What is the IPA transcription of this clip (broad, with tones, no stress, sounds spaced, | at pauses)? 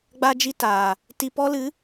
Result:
ɡ͡b a˧ d͡ʒ i˧ t aː˨ | t i˨ p ɔ˧ l ɨ˨˦